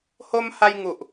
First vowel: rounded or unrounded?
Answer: rounded